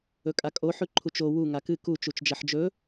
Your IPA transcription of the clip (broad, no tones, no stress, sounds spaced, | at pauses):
ɵ kʼ a kʼ o ħ ʉ ǃʰ u t͡ʃ o w u ŋ a k ɨ k u t͡ʃ u t͡ʃ d͡ʒ ɐ ħ d͡ʒ ɵ